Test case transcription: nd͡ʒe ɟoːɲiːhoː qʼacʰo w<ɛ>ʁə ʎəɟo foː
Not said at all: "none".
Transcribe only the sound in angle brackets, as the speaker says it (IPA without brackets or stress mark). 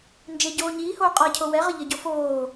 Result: ɛ